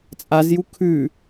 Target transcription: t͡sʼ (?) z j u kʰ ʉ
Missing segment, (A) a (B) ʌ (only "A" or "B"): A